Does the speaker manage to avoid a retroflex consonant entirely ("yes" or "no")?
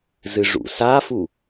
no